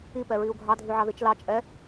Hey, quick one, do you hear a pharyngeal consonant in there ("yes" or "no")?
yes